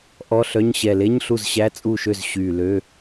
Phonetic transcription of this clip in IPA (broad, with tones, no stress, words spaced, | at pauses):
ʔɔ˧˥˧ɬœ˧˥˧ɲ ɕɛ˨˩le˧˥˧ɲ ɬu˥˩zɕæ˧˥˧ t͡sʼu˥˩ʃø˥˩z ɕyː˨˩lø˧˥˧